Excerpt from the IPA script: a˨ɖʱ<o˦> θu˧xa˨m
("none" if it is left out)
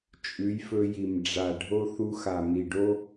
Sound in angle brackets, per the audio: o˦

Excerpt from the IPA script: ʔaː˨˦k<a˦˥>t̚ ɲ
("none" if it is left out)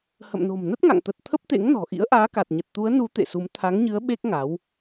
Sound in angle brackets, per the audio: a˨˩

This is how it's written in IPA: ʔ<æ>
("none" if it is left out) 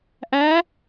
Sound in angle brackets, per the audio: æ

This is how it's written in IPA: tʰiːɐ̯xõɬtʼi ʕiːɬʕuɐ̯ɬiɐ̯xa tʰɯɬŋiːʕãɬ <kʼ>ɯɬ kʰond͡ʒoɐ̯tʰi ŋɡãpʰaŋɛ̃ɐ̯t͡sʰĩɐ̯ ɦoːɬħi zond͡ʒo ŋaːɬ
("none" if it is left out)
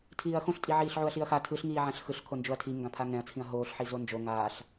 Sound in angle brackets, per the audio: x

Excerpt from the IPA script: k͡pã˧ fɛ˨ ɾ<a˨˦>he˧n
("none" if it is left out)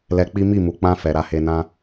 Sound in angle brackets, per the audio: a˨˦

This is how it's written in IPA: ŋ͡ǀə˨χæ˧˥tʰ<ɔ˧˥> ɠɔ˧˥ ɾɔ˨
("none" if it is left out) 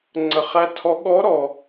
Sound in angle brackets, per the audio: ɔ˧˥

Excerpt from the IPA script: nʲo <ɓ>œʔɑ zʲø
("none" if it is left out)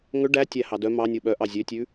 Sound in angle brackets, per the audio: ɓ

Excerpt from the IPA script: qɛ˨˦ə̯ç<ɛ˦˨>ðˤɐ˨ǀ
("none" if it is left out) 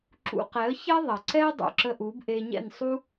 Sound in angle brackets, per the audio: ɛ˦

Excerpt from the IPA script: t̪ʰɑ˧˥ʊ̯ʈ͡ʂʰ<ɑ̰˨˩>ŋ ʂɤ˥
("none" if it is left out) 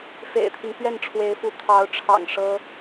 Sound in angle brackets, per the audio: ɑ̰˨˩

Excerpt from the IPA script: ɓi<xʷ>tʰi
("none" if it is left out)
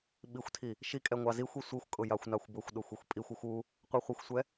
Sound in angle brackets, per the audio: xʷ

